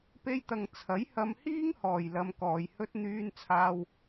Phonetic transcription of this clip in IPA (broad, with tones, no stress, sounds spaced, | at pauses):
p e˧ j t̪ ɐ˨ ŋ t͡sʰ ɐ˨˥ j h ɐ˧ m h iː˥ ŋ h ɔː˨ j l ɐ˨˧ m k ɔː˨ j h ɵ˧ t̚ n̪ yː˧ n t͡sʰ aː˧ w